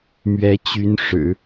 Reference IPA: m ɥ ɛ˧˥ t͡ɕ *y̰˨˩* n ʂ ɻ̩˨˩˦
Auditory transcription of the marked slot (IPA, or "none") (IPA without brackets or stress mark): y˧˥